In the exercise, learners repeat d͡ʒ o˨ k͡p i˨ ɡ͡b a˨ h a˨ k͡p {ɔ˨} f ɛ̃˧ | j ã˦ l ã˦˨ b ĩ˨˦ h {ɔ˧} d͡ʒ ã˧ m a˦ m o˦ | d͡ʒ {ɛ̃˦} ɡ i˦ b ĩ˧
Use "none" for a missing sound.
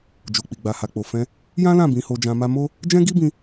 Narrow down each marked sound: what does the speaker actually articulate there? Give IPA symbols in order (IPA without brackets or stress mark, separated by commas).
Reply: o˨, o˧, ɛ̃˦